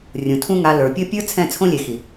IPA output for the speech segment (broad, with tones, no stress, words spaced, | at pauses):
rʲũ˨tʰũ˦ŋa˧ lə˞˨pʲɤ˦ pʲə˞˦ t͡sʰɛ̃˦˨t͡sʰõ˦lʲe˨xi˨